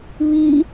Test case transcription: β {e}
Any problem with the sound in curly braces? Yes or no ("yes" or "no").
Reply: yes